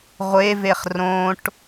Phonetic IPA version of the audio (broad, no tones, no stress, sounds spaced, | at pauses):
ʁʷ e v e χ r õ ʈ